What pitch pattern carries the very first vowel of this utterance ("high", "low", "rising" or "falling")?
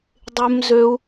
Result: high